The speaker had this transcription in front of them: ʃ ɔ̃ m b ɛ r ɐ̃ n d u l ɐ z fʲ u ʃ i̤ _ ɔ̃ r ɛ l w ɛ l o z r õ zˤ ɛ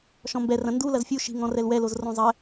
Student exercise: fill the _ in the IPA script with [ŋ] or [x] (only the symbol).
ŋ